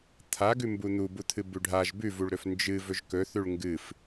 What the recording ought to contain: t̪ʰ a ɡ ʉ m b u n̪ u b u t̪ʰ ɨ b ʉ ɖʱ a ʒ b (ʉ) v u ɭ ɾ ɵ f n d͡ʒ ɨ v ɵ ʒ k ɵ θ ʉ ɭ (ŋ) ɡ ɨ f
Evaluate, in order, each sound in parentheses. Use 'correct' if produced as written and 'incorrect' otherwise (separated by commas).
correct, correct